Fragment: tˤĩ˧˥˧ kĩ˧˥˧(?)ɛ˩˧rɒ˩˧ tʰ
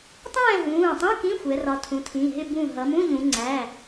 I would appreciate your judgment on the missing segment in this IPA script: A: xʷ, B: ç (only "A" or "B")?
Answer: A